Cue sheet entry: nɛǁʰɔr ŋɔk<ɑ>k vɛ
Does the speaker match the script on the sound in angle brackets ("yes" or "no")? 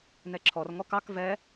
yes